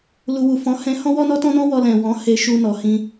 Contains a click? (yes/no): no